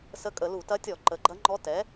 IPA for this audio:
s ə˧˥ kʼ ə˧˩˧ l u˧˩˧ t ɐ˧˥ tʲ ɔ˧˩˧ ǃ ə˩˥ ɡ͡ǃ ɐ˧˥ ŋ͡ǃ ɔ˧˥ t ɛ˩˥

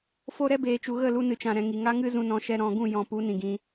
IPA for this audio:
f o˧ ɾ ɛ˦ b eː˨ t͡ʃ u˨ ɣ ə˦˨ l u˧ n ɨ˨ t͡ʃ ã˨ ɾ ɛ̃˨ ŋ i˨ ŋ a˦ ŋ ɨ˦ z ũ˧ n ɔ̃˧ ʃ ɛ˧ ɾ ɔ̃˨ ɡ ũ˦˨ j ɔ̃˧ p u˨˦ n ĩ˨ ɡ ĩ˧

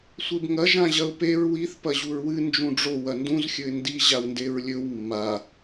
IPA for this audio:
sʷ e b ŋ ɐ ʒ ã ʑ ɐ ʊ̯ p e ɹ w i θ p ɐ ʑ u ɹ w ɨ n d͡ʒ ũ ɖ͡ʐ o w ɐ n d ũ z xʲ ɵ ɪ̯ n d i ʑ a w n d e ɹ lʲ ɵ w mː a

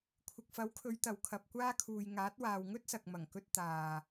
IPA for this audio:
kʷʰ ɪ˨ k̚ f ɐ˨˥ w kʰ ɵ˨˧ ɥ t̪ ɐ˨ w kʰ ɐ˨ p̚ kʷ aː˧ kʰ uː˨ j ŋ aː˨˥ t̚ w aː˨ w ŋ ɵ˥ t̚ s ɐ˨ k̚ m ɐ˨˩ ŋ k ɵ˧ t̚ t̪ aː˨

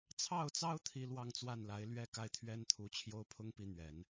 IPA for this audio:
t͡sʰ ɑ˥˩ ʊ̯ t͡s ɑ˥ ʊ̯ t̪ʰ i˥ l w ɑ˥˧ ŋ t͡s w a˥˩ n l a˧˥ ɪ̯ l ɥ ɛ˥ k a˥˩ ɪ̯ t̪ʰ ɥ ɛ˥ n t̪ʰ u˧˥ t͡ɕʰ j o˥ ʊ̯ pʰ ʊ˥ ŋ p i˧˥ n̪ ɥ ɛ˨˩˦ n

